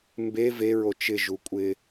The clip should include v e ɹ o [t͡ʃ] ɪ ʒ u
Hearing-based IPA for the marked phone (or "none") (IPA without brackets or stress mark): t͡ʃ